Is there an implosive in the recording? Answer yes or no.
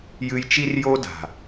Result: no